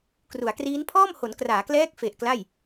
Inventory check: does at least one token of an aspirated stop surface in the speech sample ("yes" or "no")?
yes